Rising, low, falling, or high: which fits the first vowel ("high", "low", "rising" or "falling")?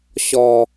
low